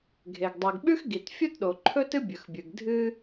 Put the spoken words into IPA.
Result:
ɡʱ e˩ ɡ dˤ e˩ ɡ ɓ ʉ˥ x ɡ i˩ t fʲ u˥ t ɗ o˩ ǃʰ ɵ˥ t ɨ˥ bʲ ɵ˩ x bʲ ɨ˩ ɡ dʱ ɨ˥

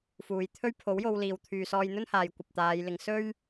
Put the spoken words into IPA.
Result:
f uː˨˧ j t̪ʰ ɵ˥ ɥ pʰ o˨˥ w j o˧ w l iː˨ w t̪ʰ yː˨ s ɔː˧ j n̪ ɵ˥ n h aː˨ j kʷ ɐ˨ p̚ t̪ aː˨˧ j l ɪ˨˧ ŋ s ɵ˥ ɥ

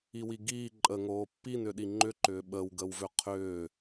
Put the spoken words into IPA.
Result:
i w i ɡ iː ǃʼ ə ŋ oː pː i n ʏ ɗ i ŋ͡ǃ ʏ ǃ ʏː ɓ ə w ɡ ə w v ʏ qʰ ʏː

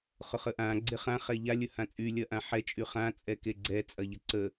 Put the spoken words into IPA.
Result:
χ ʊ χ ə ʔ ã ɡ͡ǀ e χ ã χ ɛ ʎ a lʲ ə h ã t͡sʼ y lʲ ɐ ʔ ã ħ ɛ t͡ʃʼ y χ ã t͡sʼ ɛ k e ɡ͡ǀ ɛ t͡sʼ ɐ ʎ ə ǀ ə

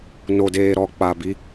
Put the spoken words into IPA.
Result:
n o˨ d eː˨ ɾ ɔ˨ k͡p a˨ b i˧

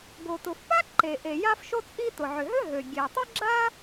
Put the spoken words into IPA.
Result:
ɡ o˩ t ʊ˩ f p a˥ ǃ e˩ ʔ e˩ j a˥ f ʃ o˥ t͡sʼ i˥ t ʊ˩ ʕ ʏ˩ ɦ ʏ˥ ɦ ø˩ ɡʲ e˩ tˤ ʏ˥ ɡ͡ǁ a˥

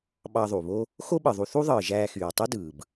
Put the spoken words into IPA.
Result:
ɓ ɑ˧ ðˤ u˩ β o˥ | x o˥ ɓ ɯ˩ ðˤ u˧ θ u˥ ðˤ ɯː˩ ʒ æː˧ x yː˩ tˤ i˥ d ɯː˩ b

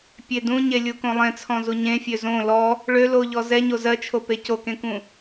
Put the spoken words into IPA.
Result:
pʲ e d ũ ɲ e lʲ u k õ lˠ ẽ t͡sʰ ɔ̃ z u ɲ ẽ fʲ ø z õ l ɔ | ɭ ø l o ʎ ɔ z ɛ ɲ o z ɜ t͡ʃʰ o p e c o k ẽ k ũ

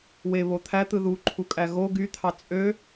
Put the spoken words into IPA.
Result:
w e β o t̪ʰ æ t̪ ɯ ð u ǃʰ u kʼ æ ɣ o ɡ y t̪ʰ ɑ t͡sʼ ø

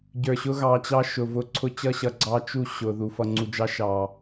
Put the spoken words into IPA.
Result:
ɟ ə˞˨ ɕ ʊ˦ ɣ ɑ˨ t͡ɕ ɑ˦ ʃ ʊ˨ v ʊ˦ ǀʰ ʊ˦ t͡ɕ ʌ˦ ɕ ʌ˨ ɡ͡ǀ ɑ˦ t͡ʃ u˦˨ ɕ ʊ˨ ð u˨ f ʌ˨ ŋ͡ǀ u˨ d͡ʒ ɑ˦ ʃ ɑ˨

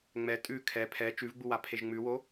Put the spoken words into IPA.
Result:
ŋ͡m ɛ tʼ ʉ kʰ ɛ pʰ ɛ t͡ʃ ʉ v ɡ͡b u w a pʰ e ʒ ŋ͡m ʉ w o

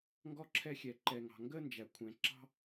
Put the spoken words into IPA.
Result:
ŋ ɡ ɔ˥ ǁʰ ɛ˦ xʲ ɛ˨ ǃ ɛ˨ ŋ ɑ̤˨ ŋ ɡ ə˥ n d͡ʒ æ˩ kʷʰ ɛ̃˩ ǁ ɑ̤˥

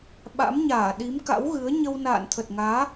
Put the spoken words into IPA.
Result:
ɓ a̰˧˥ m ɲ aː˧˩ ɗ i˨˦ m k a̰˧˥ w ɣ ɨ˨˦ ə̯ ɲ ə˧ w n a̰ː˧˨ n t̪ʰ ə˨˩ t̚ ŋ aː˨˦

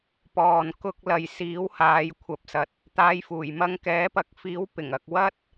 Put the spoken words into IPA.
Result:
p ɔː˨ n k ʊ˧ k̚ l ɐ˨ j s iː˨˥ w h aː˨˧ j kʷʰ ɐ˨˥ p̚ s ɐ˨ t̚ | t̪ aː˨˧ j f uː˨˩ j m ɐ˧ ŋ k ɛː˨˥ p ɐ˨˥ k̚ f iː˨˥ w p ɪ˨˩ ŋ ɐ˨ k̚ w ɐ˥ t̚

